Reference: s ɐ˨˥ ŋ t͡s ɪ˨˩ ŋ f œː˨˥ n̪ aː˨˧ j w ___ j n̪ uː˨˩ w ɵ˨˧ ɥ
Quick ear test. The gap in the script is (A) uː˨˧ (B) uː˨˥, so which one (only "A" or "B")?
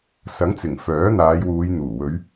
A